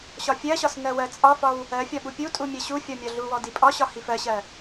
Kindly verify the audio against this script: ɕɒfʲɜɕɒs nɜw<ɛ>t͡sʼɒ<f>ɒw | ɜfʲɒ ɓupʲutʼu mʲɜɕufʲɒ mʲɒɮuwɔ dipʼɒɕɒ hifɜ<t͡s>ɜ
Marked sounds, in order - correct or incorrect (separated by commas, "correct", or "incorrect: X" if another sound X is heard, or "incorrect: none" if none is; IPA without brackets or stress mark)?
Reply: incorrect: ɜ, correct, incorrect: ɕ